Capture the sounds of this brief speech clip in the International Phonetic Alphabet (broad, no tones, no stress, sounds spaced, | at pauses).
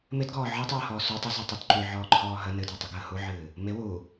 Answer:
m ɪ d ɡ ɔː ʕ ɤ tˤ uː h ɔː s u tˤ ə z y tˤ ɨ d ǃ y ʕ ɔː ǃʰ ɔː ɦ ə n ɨ d ɔ tˤ u ɡ əː h u ʕ ɨː | m ɪ w u